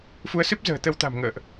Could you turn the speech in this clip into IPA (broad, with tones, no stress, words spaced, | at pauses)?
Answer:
fu˨˦ə̯sɨ˦˥p̚ zə̤ː˨˩t̪ə˧wt̪a̤˨˩m ŋə̰ː˧˨ʔ